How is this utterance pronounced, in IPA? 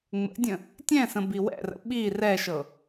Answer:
ŋ͡m ə̰ dʲ ə̃ | tʲ ɛ̃ s ə̃ b i w ɛ̰ r ə̰ ɓ i r ɛ ʃ ɤ

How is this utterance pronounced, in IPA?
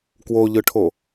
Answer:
k w o ʎ ɯ ʈʰ o

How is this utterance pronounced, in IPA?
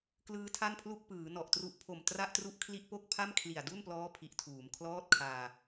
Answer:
k l ɯː˦˥ tʰ a˥˩ n pʰ l u˥˩ k̚ p ɯː˩˦ n ɔ˨˩ ʔ t r u˦˥ ʔ pʰ o˨˩ m t r a˥˩ ʔ t r u˥˩ ʔ kʰ l i˥˩ ʔ p o˥˩ k̚ pʰ a˥˩ m kʰ l i˨˩ a̯ d u˥˩ n p l ɔː˦˥ pʰ i˨˩ ʔ tʰ uː˩˦ m kʰ l ɔː˥˩ t̚ kʰ aː˧

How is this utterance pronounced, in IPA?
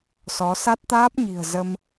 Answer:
s ɔ˨˦ s a˦˥ t̚ t̪ aː˦˥ p̚ ɲ i̤˨˩ ə̯ z ə˧ m

